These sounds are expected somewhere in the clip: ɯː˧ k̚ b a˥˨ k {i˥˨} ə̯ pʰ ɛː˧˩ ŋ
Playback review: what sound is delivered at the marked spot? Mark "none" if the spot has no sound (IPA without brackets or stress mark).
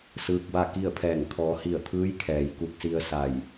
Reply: i˥˨